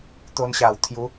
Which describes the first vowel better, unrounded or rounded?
rounded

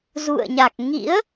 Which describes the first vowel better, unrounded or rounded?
rounded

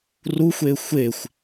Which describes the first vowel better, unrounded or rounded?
rounded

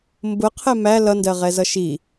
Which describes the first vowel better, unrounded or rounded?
rounded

